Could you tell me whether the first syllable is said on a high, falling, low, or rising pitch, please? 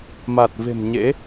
low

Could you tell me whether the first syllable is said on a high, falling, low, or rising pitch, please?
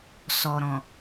low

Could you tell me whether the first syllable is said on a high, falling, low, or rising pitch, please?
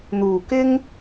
low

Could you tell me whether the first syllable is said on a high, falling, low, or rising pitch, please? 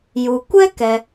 low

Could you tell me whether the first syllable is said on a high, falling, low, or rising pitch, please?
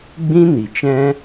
high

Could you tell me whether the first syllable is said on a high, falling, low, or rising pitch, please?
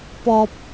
low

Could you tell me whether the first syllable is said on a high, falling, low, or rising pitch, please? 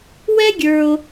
high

